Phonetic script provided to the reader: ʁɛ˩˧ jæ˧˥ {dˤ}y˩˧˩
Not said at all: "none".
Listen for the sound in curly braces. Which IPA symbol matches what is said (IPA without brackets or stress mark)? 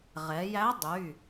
dˤ